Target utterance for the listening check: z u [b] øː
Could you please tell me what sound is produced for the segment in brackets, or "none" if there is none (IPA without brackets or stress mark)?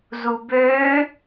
b